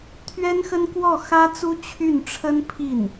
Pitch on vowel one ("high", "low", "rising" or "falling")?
high